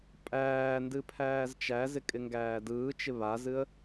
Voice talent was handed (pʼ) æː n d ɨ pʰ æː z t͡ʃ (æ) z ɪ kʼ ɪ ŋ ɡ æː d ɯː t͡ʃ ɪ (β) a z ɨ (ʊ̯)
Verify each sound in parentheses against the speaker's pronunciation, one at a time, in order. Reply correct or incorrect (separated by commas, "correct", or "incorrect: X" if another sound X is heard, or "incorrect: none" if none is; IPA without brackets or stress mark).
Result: correct, correct, correct, incorrect: ə̯